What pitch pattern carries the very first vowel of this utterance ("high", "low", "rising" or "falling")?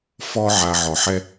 high